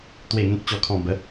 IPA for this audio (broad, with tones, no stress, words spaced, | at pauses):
t̪we˨˩ŋẽ˨k̚ t͡ɕɔ˨˩kʰɔ̃˨˩ bə˨˦